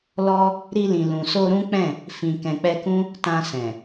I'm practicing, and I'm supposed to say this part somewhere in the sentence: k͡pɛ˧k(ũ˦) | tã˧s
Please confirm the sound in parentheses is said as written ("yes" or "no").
yes